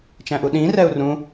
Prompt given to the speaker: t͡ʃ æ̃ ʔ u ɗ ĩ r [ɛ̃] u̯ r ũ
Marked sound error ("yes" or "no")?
yes